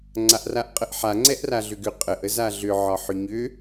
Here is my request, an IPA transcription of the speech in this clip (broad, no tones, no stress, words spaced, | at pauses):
ŋ͡ǀaʔraʔqʼəʔħa ŋ͡ǀɛʔraɮʏɡʏ qʼəʔəz aɮʏʕɒ ħʏɲʏ